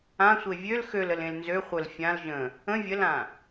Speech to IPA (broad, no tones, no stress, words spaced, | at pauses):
ãsʷe vʲøl xøləlẽl nzø χʷəl fʲãl ʒə̃ | ə̃ vʲəlã